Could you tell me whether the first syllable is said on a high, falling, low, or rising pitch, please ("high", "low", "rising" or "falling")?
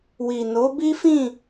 low